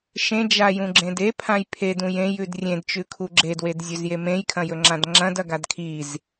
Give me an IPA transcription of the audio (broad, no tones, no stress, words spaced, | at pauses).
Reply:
ʃẽd͡ʒajũɡ͡ǁẽd epʰãj pʰedũj ẽjʉd rʲẽdt͡ʃʉkʰu ɡ͡ǁedwedzʲɵzje mẽjkʰɐ̃jɵŋ͡ǁãd ŋ͡ǁɐ̃dɐɡad kʰiz